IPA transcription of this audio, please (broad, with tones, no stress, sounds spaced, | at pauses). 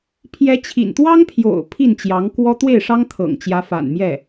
pʰ j ɛ˧˥ t͡ɕʰ ḭ˨˩ n t̪ w ɑ˥ ŋ pʰ j o̰˨˩ ʊ̯ pʰ i˥˩ n t͡ɕ j ɑ˧˥ ŋ k w ɔ˥ t̪ w e˥˩ ɪ̯ ʂ ɑ˥ ŋ t̪ʰ ɤ̰˨˩ ŋ t͡ɕ j ä˧˥ f a̰˨˩ n m j ɛ˥˩